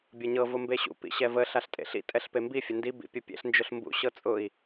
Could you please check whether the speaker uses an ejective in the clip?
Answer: yes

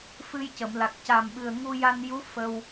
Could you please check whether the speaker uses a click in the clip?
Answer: no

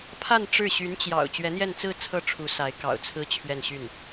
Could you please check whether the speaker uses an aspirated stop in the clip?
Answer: yes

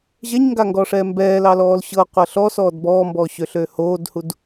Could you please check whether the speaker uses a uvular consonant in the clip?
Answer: yes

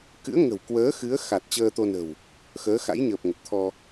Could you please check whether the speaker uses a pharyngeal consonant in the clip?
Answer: no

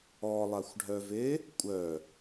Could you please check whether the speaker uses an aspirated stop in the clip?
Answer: no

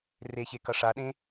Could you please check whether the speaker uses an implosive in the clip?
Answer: yes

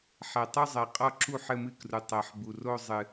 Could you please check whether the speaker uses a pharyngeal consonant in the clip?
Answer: yes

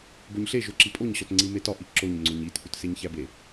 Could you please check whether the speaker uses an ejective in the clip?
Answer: yes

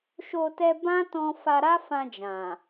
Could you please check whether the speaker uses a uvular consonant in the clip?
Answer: no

